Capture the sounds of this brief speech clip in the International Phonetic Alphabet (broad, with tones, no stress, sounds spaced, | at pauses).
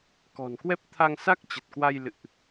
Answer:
k ɔ̤˨˩ n k w ɛ˦˥ p̚ t̪ʰ a˧ ŋ s a˦˥ k̚ t͡ɕ ə˨˩ t̚ k w a˧ j l ɨ̰˧˨ ʔ